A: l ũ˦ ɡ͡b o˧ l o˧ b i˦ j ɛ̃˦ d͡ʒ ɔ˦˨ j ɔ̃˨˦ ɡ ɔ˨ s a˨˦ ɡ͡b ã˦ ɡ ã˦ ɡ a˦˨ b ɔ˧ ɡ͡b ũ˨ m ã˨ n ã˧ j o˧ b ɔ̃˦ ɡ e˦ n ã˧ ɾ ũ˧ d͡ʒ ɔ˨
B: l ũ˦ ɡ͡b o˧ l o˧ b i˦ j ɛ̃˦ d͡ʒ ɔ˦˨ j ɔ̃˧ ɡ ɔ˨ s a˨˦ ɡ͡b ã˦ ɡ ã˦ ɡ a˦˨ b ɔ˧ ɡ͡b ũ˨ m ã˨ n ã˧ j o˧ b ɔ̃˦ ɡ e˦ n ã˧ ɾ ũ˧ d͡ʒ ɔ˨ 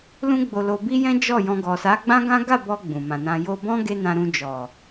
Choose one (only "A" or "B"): B